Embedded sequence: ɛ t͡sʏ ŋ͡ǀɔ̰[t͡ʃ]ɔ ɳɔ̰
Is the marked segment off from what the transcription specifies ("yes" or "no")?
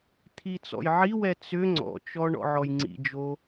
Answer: no